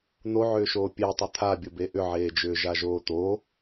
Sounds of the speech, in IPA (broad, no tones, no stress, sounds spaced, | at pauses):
n̪ o ʕ ʏː ʃ oː pʲ e tˤ ʏ t̪ʰ a bʲ ʊ b e ʔ ʏ ʕ eː d͡ʒ ʏː ʒ a ʒ oː t̪ o